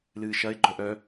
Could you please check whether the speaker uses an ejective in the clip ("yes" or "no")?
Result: no